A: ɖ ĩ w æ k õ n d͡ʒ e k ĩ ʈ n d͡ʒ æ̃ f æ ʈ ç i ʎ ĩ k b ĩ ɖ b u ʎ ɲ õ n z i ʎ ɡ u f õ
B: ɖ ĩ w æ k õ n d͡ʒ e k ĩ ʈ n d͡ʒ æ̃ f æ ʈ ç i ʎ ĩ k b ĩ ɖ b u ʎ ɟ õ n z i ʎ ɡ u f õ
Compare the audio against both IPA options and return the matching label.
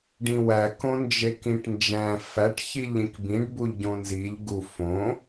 B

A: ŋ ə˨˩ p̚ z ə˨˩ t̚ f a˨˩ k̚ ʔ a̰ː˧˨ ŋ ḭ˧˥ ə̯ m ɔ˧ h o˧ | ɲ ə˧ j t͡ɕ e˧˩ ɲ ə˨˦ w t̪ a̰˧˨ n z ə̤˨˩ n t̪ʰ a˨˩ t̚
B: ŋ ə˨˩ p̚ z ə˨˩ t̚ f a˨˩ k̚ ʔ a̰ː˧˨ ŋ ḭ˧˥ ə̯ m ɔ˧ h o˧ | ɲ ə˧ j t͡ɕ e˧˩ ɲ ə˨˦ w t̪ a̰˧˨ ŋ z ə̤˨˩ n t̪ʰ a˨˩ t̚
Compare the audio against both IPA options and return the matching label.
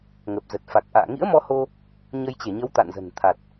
A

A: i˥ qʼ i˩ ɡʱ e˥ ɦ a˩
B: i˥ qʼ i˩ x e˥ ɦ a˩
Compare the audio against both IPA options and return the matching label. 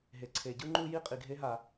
A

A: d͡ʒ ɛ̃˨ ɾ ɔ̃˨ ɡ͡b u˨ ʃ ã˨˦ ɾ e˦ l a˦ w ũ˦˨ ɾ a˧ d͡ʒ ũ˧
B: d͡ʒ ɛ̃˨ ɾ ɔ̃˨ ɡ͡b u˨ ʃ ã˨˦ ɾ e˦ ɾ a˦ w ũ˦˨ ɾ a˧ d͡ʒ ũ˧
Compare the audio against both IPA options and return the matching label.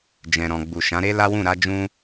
A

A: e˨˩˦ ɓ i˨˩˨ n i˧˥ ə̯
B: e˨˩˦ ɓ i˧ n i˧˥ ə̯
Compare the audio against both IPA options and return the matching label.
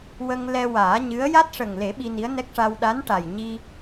B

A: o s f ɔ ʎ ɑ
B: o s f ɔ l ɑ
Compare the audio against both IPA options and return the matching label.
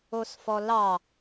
B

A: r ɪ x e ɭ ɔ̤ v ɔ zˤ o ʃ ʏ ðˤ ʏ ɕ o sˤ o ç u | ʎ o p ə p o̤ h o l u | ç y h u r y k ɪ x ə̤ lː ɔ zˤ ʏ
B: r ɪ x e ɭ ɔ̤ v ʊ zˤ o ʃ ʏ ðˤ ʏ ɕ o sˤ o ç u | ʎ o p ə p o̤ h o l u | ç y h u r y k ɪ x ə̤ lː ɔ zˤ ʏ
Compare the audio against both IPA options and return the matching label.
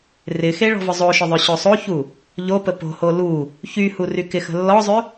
B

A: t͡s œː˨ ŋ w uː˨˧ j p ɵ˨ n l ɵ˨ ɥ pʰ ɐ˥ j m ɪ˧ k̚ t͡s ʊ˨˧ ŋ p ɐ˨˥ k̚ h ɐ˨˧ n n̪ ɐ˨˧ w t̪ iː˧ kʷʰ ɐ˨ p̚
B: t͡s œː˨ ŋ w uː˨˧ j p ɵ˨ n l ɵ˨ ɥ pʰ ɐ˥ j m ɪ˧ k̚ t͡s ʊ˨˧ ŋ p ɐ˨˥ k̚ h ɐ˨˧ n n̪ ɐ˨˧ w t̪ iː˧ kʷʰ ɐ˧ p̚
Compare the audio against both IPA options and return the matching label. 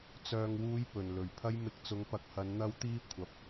B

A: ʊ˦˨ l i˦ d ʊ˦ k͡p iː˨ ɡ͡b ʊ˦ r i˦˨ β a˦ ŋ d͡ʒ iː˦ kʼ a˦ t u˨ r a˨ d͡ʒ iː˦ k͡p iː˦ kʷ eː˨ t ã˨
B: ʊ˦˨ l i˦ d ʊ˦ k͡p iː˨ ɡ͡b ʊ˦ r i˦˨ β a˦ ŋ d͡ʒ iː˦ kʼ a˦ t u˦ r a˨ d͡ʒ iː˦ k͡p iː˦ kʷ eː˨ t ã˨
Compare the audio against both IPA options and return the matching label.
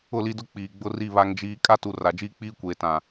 A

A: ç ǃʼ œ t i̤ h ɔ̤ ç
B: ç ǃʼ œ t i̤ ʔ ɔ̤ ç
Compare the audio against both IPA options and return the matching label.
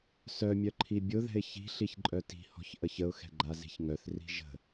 A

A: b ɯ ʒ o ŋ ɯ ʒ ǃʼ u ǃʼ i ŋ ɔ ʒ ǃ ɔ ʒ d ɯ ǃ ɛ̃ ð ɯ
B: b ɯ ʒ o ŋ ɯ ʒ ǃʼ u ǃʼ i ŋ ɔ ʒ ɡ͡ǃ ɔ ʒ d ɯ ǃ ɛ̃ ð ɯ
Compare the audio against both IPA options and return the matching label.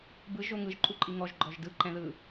B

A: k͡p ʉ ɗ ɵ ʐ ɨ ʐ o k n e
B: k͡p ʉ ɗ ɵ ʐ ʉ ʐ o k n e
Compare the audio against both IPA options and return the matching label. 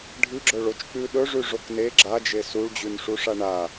B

